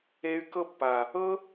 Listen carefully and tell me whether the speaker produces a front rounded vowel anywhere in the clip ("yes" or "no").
yes